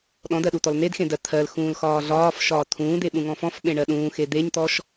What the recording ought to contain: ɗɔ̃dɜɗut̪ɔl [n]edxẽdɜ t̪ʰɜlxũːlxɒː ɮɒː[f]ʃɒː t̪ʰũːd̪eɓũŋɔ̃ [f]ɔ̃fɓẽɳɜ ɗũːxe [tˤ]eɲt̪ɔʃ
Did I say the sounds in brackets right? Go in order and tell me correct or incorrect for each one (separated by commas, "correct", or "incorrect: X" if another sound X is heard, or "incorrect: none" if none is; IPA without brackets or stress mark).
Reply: correct, correct, correct, incorrect: d̪